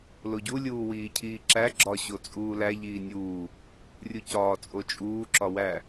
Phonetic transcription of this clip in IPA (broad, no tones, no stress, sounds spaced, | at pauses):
l o ɟ u lʲ uː w iː cʰ iː ǁ æ ɡ͡ǁ ɒ ɕ o t͡sʼ uː l æ ʎ iː nʲ uː | rʲ u c ɒː t͡sʼ o t͡ʃʼ uː ǁ ɒ w æ